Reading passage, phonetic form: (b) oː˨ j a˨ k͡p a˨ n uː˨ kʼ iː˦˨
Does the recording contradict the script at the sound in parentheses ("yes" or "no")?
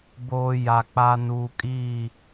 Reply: no